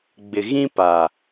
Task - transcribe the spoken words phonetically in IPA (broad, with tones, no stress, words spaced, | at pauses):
ɡ͡bɪ˨ɣĩ˦pa˨